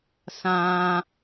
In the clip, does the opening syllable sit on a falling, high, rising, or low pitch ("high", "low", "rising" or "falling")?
high